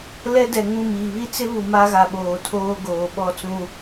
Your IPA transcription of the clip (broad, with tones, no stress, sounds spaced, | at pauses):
l ɛ˦ d ɛ˨ ŋ ũ˦˨ m iː˨ β i˦ t͡s ɪ˦ β u˨ m a˦ ɣ a˨ ɓ oː˨ tʰ oː˦ ɡ oː˨ ɓ ɔ˦ t͡s ũ˦